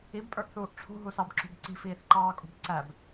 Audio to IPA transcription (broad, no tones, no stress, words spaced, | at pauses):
ibpʼə˞ʔθuːʔ ʈ͡ʂʰṳɦusɑbǁṳb ǀi̤fiːθǃɑːkʼṳb ǀæb